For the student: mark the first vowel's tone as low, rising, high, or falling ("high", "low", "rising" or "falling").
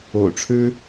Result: low